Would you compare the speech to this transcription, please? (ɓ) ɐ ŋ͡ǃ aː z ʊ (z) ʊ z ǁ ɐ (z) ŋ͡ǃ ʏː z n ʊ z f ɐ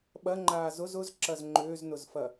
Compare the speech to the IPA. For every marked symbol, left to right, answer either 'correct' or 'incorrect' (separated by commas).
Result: correct, correct, correct